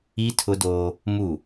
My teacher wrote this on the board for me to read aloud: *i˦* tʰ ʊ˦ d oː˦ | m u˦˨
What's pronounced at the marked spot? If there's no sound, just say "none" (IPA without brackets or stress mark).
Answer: i˦